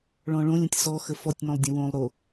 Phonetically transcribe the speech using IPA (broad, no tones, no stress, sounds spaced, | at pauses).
ɭ ɔ̃ ɭ õ lʲ ə̃ tʲ s ɔ x ə f ɔ tʲ n ɔ̃ lˠ dʲ ə̃ w õ lˠ ɾ o